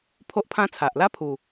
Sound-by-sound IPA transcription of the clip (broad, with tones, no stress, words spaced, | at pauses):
pʰo˦ʔpʰã˦t͡sʰa˨ʔ la˦pʰu˨˩